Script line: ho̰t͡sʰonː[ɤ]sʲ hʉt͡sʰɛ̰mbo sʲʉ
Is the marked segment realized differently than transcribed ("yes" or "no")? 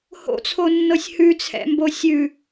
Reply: no